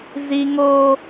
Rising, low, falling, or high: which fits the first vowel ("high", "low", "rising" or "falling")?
high